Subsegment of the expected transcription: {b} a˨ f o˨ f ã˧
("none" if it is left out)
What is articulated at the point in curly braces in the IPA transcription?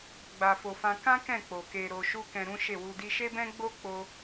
ɡ͡b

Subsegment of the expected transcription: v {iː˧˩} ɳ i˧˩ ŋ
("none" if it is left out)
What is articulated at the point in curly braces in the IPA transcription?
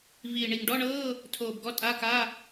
iː˧˩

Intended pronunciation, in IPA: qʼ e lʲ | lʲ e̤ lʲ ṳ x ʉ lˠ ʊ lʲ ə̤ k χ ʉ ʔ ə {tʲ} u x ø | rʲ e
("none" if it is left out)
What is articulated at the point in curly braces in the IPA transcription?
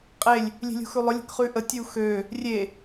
tʲ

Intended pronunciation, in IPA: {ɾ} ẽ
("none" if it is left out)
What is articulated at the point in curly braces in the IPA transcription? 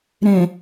ɾ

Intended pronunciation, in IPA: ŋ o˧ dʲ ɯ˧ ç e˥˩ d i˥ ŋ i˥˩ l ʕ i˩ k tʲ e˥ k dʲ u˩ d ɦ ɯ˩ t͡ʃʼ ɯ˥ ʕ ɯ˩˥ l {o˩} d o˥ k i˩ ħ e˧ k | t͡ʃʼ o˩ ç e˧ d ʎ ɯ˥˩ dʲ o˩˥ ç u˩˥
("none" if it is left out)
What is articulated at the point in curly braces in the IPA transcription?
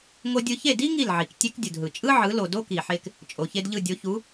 o˩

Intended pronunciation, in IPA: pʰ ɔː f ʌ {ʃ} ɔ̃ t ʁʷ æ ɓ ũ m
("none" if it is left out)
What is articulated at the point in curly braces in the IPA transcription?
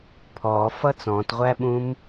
t͡s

